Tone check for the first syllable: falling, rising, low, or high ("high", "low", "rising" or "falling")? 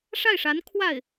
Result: falling